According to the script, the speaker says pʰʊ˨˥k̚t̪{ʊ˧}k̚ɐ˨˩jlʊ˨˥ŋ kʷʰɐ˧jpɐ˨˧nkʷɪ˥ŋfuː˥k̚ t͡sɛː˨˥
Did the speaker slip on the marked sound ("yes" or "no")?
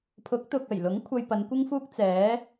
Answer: yes